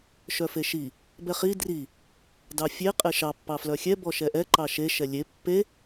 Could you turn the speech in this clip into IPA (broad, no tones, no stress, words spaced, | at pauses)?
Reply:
ʃœfeʃi | bɛχi dri | dɑfʲe qʼeʃɑ pːɑflœxʲɛ bɔʃɛʔɛ ǃɑʃe ʃɛlʲe pːe